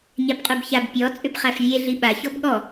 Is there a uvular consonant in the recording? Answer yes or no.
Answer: yes